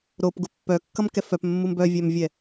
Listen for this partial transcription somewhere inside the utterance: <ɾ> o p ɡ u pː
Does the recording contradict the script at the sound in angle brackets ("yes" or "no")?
no